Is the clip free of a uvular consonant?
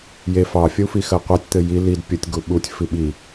no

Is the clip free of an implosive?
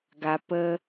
yes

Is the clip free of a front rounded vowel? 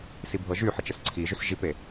no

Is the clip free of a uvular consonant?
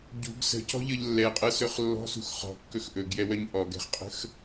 no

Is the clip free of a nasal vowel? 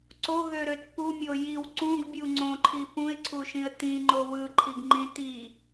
no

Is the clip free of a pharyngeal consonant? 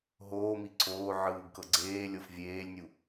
no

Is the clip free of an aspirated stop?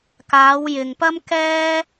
yes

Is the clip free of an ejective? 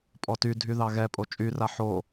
no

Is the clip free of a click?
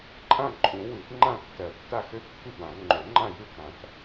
no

